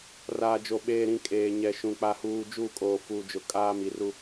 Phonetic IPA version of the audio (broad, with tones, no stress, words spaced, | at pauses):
raː˨d͡ʒo˨ ɓeː˨ɾĩ˨ kʼeː˨ɲɛ˨ʃũ˨ k͡pa˦huː˦ d͡ʒu˦˨kʼoː˨ fuː˨d͡ʒʊ˨kʼaː˦ mi˨ru˦